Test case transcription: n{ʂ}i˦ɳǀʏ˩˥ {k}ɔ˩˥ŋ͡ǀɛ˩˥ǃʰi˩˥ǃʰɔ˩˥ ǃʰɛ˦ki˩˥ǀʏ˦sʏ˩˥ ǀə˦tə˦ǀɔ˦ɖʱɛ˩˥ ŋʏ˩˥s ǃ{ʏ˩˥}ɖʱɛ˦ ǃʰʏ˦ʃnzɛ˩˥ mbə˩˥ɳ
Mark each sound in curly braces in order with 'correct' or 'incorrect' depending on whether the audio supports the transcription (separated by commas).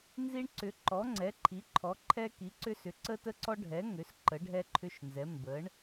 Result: incorrect, incorrect, incorrect